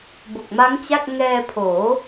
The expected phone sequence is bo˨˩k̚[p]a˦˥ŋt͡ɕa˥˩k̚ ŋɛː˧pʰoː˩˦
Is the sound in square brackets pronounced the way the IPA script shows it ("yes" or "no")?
no